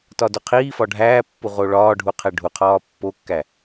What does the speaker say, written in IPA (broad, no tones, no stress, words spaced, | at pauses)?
tɒdoqʰiːfɒ ɖʱæːpːu ʁoɭɒːɖʱu qʰeɖʱuqʰɒː pːokːæ